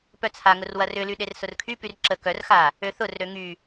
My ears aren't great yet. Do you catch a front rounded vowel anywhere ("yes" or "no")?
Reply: yes